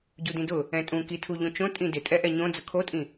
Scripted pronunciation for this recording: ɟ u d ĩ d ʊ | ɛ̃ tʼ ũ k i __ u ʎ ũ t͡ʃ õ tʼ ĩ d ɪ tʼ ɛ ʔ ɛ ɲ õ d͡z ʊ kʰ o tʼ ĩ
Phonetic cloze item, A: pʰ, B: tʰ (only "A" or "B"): B